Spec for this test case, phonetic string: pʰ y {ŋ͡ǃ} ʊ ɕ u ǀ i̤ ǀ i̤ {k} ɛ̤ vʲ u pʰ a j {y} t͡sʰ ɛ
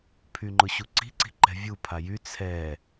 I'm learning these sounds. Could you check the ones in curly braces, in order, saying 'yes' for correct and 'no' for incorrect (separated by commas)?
yes, no, yes